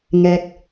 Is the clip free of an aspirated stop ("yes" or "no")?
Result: yes